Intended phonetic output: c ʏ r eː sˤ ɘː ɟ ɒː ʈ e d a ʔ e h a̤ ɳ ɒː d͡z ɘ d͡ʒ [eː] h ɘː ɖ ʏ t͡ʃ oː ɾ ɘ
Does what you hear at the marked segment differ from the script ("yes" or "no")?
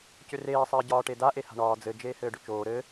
no